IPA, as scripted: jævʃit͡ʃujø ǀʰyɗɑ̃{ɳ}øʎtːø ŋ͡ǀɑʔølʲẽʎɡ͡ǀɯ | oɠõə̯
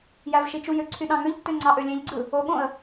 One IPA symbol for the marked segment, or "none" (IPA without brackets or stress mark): ŋ